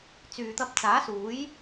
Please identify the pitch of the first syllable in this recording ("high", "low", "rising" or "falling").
low